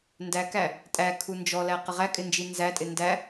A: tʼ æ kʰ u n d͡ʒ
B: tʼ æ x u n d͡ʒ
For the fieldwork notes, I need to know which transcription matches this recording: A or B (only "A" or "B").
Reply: A